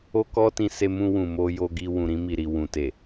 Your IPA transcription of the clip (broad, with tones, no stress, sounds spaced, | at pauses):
o˦ k ɔ˦ t ĩ˧ s e˧ m ũ˧ w ũ˨ m o˧ j o˧ ɡ i˧ w ũ˨ ɾ ĩ˧ m i˨ ɾ i˨ w ũ˨ t e˨